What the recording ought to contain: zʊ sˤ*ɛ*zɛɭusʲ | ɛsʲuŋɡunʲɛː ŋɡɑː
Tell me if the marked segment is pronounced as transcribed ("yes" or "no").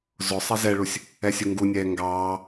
yes